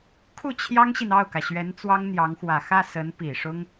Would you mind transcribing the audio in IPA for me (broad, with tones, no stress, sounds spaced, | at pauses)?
kʰ u˥˩ t͡ɕʰ j ɑ˥ ŋ ɕ i˨ n ɑ˥˩ ʊ̯ k ä˩ ɕ ɥ ɛ˧˥ n t͡s w ɑ˥ ŋ n̪ j ɑ˧˥ ŋ x w ä˨˩ x ä˥˩ s ə˧˥ n p i˨˩ ʂ ʊ˥ ŋ